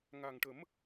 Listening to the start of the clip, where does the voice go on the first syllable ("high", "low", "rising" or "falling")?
low